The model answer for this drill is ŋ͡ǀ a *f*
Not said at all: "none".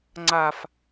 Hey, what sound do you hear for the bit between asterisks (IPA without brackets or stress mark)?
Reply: f